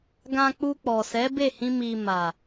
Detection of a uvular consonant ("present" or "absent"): absent